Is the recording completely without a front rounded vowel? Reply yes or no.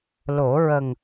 yes